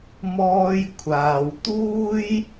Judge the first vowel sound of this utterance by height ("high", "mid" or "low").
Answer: mid